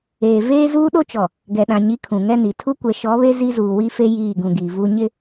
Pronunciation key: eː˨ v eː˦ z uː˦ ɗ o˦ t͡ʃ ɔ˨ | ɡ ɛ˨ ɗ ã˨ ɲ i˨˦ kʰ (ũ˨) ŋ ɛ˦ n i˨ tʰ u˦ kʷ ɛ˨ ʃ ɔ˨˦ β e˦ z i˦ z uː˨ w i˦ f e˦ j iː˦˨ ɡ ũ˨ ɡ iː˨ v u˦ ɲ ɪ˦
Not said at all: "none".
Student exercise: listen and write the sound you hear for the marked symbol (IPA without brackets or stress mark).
ũ˨